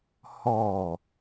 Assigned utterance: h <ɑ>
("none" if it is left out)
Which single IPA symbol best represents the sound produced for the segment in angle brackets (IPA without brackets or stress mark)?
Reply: ɔ